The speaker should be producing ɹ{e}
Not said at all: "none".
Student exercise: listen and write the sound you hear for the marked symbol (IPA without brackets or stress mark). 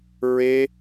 e